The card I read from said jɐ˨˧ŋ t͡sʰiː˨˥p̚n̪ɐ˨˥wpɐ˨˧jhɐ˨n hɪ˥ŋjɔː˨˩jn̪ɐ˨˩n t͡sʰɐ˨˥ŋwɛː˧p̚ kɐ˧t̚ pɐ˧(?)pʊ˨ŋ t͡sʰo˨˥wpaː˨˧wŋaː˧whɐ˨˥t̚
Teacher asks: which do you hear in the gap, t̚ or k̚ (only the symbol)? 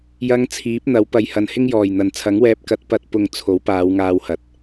t̚